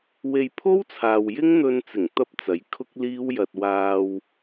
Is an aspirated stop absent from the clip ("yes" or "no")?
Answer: no